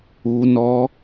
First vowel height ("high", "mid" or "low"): high